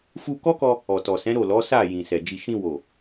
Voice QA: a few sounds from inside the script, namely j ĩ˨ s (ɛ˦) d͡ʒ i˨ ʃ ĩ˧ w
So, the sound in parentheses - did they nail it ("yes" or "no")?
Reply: no